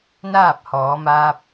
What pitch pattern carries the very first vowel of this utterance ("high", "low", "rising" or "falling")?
falling